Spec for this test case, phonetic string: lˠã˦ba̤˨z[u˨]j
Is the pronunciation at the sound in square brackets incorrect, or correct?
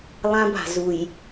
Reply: correct